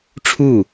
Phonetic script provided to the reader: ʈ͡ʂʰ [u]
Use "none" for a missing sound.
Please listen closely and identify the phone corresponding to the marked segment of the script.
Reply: u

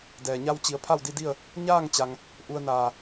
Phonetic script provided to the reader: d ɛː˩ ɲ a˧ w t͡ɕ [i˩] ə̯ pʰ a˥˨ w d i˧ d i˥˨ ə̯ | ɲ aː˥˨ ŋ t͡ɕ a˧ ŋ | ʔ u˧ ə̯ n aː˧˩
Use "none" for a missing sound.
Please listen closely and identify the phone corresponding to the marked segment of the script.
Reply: i˩˧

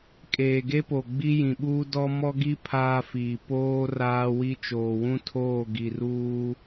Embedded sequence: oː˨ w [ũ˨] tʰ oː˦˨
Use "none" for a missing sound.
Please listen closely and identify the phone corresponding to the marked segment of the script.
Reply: ũ˦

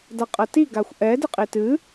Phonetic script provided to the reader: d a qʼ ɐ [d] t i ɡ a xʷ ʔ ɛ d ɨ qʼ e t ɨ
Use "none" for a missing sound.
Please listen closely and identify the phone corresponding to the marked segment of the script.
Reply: none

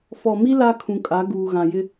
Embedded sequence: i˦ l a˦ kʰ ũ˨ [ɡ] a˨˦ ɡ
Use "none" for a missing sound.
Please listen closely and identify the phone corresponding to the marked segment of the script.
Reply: kʼ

